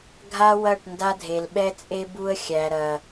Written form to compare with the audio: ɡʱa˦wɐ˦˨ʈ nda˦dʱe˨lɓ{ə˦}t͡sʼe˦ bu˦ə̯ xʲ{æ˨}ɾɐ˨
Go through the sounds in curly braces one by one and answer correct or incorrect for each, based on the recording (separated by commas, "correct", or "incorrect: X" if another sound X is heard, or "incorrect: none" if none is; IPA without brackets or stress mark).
incorrect: ɛ˦, correct